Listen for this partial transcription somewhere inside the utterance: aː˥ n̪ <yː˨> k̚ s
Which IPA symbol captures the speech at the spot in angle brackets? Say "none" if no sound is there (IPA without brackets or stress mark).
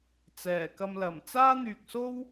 yː˨